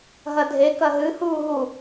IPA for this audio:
ɦ ɐ dʱ e k ɐ ɦ ɨ h uː ɦ u

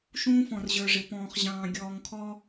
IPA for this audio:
ʃ ũː˦ f ɔ̃˨ r ʑ ə˞˨ ʐ ɪ˨ p ɔ̃ː˨ χ ʑ ɑ̃ː˨ ɡʲ ɔː˨ ŋ kʰ ɔ˦

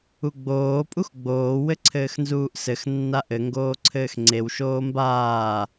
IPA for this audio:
u ɡ͡b oː pʼ u x ɡ͡b oː w ɘ ǀʰ ɘː x n z uː ʔ s ɘ x nː a ʔ ɘ ŋ ɡ oː ǀʰ ɘː x ŋ͡ǀ e w ʃ oː m b aː

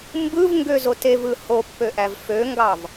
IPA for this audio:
m b ɯ v ŋ ɡ ø z o t e v ɯ h o pː ø ʔ æ v f ø ŋ ɡ ɑ v

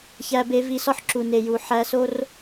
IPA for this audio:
ç æ˦ b e˦ v i˦ s ɒ˦ ħ ǁ u˨ n e˨ j u˨ ħ æ˦ s o˦ r

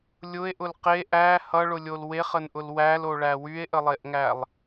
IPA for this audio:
lʲ ʊ e̯ ʔ ʊ l q e ʔ æ h ʌ ɭ ʊ lʲ o l w e χ ə n ʔ ʊ l w æ l o ɭ æ w y e̯ ʔ ə lˠ e ʔ ŋ æ lˠ

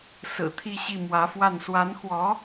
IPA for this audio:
s ɹ̩˨˩ t̪ʰ i˥˧ ɕ i˥˩ m w ä˧˥ f w a˥˩ n s w a˧˥ n x w ɔ˧˥

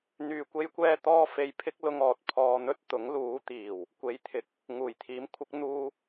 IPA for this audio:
n̪ yː˨ kʷ e˧ j kʷ ɛː˧ t̪ ɔː˥ f e˧ j pʰ ɪ˥ k̚ l ʊ˧ ŋ ɔː˨ t̚ pʰ ɔː˧ n̪ ɵ˥ t̚ t̪ ʊ˨˥ ŋ l uː˨˧ t̪ iː˨˩ w | kʷ e˨˧ j t̪ʰ ɪ˨ k̚ | ŋ uː˨˩ j t̪ʰ iː˨˥ m kʷʰ ɪ˨˥ k̚ n̪ uː˧

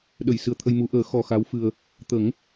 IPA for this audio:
ɗ ə˨˩˨ j s ɨ˨˩ ə̯ t̪ʰ ə˧ j m u˨˩˦ ʔ əː˨˩˦ x ɔ˧ x a˧˥ w f ɨ˧ ə̯ | t̪ ə˨˩˦ ŋ

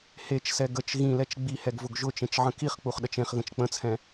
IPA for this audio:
h e t͡ʃ s ɛ ɡ ə t͡ʃ ɣ ĩ l ɛ t͡ʃ ɡ͡b i h ɛ ɡ v ʊ ɡ ʒ ʊ t͡ʃ ẽ t͡ʃ ʕ ə̃ k i χ k͡p u χ ɗ ə t͡ʃ ẽ χ ɣ ə̃ t͡ʃ k͡p ə̃ t͡sʰ ɛ̃

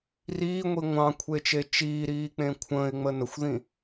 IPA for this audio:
r iː ŋʷ i ŋʷ ɑ̃ kʷʰ e t͡ʃ e t͡ʃ iː ɾ iː k͡p ẽ kʷʰ ə̃ː ɪ̯ ŋ͡m ə n ə xʷ ð ĩ

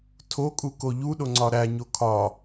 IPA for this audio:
tʰ o kʼ u k o ʎ u ɗ o ŋ͡ǀ ɒ ɾ æ ɲ o kʰ ɒ

